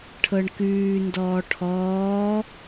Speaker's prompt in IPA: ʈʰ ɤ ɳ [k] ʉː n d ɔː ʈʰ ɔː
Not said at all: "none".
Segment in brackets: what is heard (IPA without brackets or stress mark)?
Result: k